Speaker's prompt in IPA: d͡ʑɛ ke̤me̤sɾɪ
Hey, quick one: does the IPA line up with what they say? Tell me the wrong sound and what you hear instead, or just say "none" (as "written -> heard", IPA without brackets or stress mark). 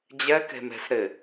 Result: none